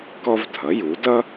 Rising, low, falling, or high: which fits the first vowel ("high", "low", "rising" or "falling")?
high